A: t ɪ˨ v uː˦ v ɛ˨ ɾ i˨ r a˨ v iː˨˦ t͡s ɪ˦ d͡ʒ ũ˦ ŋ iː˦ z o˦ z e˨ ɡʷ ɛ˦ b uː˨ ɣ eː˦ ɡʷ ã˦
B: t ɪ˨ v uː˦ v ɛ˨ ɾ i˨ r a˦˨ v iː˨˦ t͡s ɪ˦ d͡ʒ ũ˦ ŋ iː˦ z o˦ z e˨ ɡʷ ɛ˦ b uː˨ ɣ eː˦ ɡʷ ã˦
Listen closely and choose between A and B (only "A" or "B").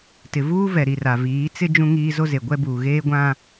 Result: A